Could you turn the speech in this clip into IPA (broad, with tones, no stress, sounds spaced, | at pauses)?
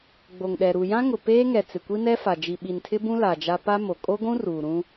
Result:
ɡ͡b o˨ ŋ ɗ ɛ˨ ɾ u˨ j ã˦ ŋ ʊ˨ p eː˦ ŋ ɛ˨ t͡s ɪ˨ kʷ i˦ n ɛ˦ f a˨ d͡ʒ i˨ ɓ i˨ n tʰ ɪ˦ b ũ˦ l a˨ d͡ʒ a˦ p a˦ m o˨ kʼ o˦ ɡʷ ũ˦ r uː˨ ɾ ũ˦